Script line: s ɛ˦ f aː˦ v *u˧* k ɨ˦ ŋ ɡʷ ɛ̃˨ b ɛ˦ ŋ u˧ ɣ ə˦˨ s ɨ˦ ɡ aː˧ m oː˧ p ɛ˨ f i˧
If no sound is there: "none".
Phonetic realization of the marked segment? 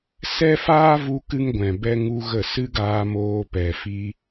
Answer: u˦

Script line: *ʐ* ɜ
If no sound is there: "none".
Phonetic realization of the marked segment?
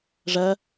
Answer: ʐ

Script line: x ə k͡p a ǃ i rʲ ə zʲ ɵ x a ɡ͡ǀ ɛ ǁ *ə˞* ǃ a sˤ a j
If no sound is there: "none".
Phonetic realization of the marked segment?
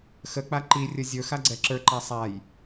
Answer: ə˞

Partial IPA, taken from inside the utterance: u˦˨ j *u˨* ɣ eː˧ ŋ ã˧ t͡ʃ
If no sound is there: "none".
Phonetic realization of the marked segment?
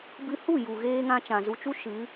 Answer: u˨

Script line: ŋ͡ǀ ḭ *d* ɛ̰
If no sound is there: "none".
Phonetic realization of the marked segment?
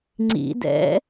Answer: d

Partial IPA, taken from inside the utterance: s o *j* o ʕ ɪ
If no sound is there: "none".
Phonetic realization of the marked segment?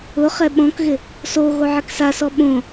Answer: ɣ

